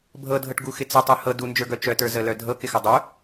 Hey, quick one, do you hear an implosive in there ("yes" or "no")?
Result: no